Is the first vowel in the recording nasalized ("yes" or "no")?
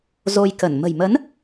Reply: no